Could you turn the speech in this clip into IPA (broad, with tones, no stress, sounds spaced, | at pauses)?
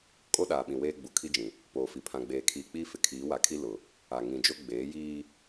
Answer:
kʼ o˦ ɗ aː˨ ɓ ĩ˨ w eː˦ ɡ͡b u˨ kʰ i˦ d͡ʒ ĩ˨ | p oː˨ f i˨ pʰ ã˨ ɡ͡b eː˨ kʰ iː˨ k͡p iː˦ f ɪ˨ kʰ iː˨˦ w a˨ kʰ i˦ l ʊ˨ | a˨ ŋ ĩ˨ d͡ʒ o˦ ɡ͡b eː˨˦ j iː˦